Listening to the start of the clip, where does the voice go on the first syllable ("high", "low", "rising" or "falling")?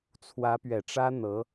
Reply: rising